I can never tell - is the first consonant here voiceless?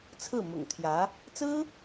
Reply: yes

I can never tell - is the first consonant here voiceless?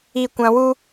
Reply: yes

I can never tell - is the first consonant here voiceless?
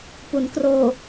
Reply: yes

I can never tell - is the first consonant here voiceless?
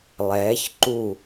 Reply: no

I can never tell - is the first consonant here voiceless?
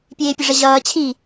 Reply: yes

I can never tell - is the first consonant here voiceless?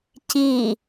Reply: yes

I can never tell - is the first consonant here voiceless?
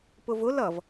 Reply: yes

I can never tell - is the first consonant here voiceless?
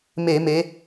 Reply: no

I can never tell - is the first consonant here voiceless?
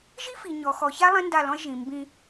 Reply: no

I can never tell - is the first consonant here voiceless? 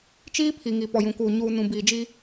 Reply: yes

